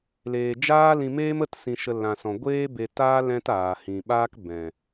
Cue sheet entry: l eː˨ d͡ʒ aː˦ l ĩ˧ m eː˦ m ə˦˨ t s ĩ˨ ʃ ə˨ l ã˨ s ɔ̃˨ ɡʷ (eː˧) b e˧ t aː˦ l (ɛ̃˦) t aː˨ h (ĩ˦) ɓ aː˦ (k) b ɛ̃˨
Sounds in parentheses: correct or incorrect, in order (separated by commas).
incorrect, correct, incorrect, correct